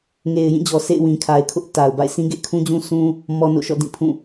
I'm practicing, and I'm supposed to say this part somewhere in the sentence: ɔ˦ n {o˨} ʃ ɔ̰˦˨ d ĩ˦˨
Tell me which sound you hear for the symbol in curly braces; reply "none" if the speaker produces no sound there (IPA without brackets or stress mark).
o̰˦˨